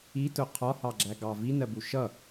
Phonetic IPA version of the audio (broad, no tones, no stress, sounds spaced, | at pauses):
i t ʊ qʰ ɒ h ɑ ɡ͡ǁ æ ɡ ɑ v i n ɜ b u ʃ ʌ